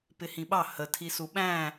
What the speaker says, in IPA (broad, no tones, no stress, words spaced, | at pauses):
pɪhĩɓɑ hə tʰisuɓæ̃